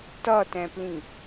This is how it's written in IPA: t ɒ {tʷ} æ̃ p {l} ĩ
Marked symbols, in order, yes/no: no, yes

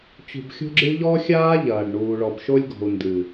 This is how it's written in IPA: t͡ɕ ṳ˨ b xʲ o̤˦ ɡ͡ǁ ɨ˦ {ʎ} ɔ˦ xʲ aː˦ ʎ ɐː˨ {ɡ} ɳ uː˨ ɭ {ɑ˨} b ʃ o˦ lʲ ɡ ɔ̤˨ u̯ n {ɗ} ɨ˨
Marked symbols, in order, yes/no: yes, no, no, no

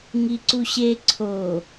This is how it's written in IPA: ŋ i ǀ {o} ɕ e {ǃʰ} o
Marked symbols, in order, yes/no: no, no

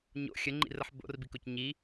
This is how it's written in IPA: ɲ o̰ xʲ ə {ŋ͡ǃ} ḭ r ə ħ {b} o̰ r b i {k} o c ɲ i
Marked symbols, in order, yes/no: yes, yes, yes

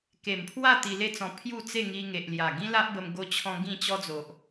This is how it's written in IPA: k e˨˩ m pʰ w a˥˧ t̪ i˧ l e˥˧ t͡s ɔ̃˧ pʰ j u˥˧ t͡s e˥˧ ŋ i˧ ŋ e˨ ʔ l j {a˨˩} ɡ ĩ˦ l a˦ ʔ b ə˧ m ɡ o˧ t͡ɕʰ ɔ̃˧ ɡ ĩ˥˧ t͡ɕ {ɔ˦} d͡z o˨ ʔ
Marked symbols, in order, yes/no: yes, yes

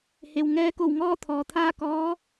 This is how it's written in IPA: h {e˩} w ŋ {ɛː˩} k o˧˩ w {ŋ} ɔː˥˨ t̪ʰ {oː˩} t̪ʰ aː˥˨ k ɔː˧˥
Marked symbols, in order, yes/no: yes, no, yes, no

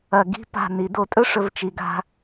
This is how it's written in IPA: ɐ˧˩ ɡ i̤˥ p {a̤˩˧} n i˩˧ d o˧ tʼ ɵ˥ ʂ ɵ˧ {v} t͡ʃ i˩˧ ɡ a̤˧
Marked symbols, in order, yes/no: no, yes

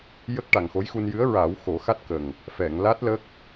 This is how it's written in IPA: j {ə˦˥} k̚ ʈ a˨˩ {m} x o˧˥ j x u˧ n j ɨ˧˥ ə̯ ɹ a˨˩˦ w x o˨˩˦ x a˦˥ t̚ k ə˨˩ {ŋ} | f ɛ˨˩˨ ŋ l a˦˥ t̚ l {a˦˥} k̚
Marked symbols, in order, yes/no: yes, no, yes, no

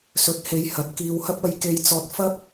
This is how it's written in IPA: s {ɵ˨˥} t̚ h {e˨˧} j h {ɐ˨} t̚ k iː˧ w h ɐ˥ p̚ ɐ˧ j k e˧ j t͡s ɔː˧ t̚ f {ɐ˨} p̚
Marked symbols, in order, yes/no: yes, yes, no, no

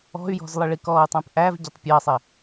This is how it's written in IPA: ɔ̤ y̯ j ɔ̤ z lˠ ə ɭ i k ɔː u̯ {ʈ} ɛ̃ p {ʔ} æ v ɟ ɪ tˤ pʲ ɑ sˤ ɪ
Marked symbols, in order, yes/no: no, yes

